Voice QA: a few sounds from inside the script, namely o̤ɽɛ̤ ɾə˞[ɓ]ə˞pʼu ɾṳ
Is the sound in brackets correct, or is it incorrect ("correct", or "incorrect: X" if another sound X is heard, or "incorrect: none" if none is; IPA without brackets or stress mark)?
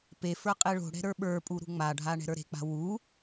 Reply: correct